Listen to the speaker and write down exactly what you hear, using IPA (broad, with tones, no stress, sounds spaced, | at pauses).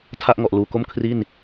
tʰ a˥˩ ʔ ŋ ɔ˨˩ ʔ l uː˨˩ k o˥˩ m kʰ r i˥˩ n